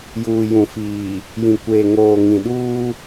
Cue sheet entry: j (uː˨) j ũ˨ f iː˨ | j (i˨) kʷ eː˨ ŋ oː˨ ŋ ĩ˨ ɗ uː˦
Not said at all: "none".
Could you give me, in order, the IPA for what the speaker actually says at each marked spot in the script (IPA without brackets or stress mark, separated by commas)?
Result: uː˨, ĩ˨